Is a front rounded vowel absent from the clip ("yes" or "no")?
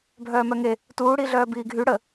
no